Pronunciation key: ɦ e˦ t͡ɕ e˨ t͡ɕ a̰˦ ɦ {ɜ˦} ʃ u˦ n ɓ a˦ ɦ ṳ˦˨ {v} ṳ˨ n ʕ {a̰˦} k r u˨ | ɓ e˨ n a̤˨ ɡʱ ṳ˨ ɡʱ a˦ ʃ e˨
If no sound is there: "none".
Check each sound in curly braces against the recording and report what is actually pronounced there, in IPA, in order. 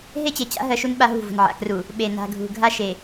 ɜ˦, v, a̰˨

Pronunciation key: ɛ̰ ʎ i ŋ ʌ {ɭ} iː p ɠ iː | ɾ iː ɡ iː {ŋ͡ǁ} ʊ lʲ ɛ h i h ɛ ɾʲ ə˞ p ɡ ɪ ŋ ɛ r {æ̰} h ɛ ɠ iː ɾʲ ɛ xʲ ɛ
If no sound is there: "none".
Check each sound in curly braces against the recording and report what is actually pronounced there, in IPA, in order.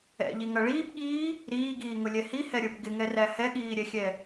ɭ, ŋ, æ

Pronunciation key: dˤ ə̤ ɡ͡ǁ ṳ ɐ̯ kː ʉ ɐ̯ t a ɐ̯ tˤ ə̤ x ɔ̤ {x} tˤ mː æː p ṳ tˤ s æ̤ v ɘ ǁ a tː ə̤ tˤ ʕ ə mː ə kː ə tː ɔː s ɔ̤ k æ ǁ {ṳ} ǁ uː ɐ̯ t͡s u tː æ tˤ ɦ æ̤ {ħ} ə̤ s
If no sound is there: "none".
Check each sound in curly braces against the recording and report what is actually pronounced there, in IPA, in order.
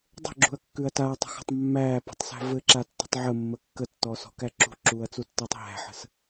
none, ṳ, ħ

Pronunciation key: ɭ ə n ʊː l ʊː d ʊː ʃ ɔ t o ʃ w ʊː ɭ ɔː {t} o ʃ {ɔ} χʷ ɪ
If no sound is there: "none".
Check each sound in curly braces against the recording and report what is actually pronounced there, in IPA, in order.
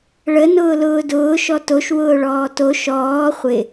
t, ɔː

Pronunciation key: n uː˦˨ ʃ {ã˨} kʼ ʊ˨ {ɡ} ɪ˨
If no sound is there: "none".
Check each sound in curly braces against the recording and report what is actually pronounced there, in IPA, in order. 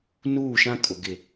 ã˦, ɡ

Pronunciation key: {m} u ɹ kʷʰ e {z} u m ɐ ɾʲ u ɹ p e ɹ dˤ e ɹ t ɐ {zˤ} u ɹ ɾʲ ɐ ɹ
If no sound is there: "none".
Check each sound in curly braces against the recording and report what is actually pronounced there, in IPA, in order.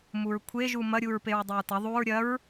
m, ʒ, ðˤ

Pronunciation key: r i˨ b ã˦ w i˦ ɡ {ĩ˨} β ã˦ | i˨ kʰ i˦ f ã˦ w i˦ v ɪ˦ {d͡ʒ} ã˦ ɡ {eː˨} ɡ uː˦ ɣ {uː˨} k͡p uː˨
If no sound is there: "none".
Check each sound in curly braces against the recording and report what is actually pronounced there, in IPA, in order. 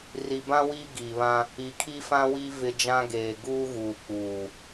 i˨, d͡ʒ, eː˨, uː˨

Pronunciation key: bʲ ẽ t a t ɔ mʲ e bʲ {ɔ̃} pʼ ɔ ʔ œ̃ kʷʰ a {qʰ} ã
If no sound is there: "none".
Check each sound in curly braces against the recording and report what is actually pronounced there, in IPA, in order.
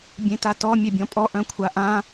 ɔ̃, ʔ

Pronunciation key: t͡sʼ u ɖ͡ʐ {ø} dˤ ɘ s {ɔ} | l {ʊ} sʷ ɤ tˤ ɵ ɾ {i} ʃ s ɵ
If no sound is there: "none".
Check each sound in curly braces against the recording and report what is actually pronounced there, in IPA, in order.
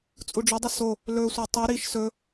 ɵ, o, ɵ, i

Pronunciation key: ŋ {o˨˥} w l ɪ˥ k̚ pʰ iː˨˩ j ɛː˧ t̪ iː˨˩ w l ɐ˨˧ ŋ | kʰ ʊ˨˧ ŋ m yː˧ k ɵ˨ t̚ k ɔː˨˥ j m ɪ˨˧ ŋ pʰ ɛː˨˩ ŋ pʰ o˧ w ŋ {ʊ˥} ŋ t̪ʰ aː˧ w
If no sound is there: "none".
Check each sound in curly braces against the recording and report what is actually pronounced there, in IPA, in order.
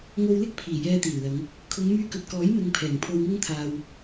o˧, ʊ˥

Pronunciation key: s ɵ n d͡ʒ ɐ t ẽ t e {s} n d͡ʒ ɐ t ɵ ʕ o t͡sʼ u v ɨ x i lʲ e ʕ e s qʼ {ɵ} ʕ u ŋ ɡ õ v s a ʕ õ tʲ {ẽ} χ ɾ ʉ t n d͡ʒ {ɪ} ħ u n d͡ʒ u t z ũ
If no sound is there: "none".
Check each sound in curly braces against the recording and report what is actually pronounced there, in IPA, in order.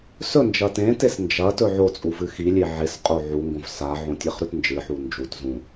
s, o, e, ɨ

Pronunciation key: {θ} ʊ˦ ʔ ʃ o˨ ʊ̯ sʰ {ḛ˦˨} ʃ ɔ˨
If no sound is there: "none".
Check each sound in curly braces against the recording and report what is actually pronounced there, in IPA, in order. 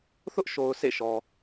θ, ḛ˦˨

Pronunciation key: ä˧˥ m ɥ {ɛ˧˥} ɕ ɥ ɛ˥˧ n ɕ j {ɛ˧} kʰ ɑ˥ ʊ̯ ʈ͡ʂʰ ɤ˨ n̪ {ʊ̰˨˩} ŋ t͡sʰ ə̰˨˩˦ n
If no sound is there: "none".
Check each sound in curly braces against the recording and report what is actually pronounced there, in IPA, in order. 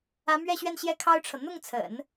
ɛ˥˧, ɛ˥˩, ʊ˥˩

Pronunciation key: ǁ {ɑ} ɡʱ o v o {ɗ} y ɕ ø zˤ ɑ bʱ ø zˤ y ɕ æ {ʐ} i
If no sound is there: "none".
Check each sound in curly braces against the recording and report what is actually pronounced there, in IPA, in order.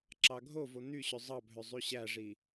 ɑ, n̪, ʐ

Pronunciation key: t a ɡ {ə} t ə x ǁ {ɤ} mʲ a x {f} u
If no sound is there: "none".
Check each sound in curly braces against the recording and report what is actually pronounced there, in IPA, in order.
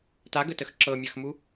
ə, ɤ, m

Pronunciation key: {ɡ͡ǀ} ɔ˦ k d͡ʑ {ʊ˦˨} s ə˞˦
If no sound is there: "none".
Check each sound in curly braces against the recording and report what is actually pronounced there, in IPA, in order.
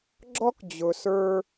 ɡ͡ǁ, ʊ˨

